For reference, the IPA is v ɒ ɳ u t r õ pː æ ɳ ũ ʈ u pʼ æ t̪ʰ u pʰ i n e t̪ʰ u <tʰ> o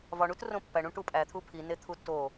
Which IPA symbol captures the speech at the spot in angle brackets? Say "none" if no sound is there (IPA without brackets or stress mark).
tː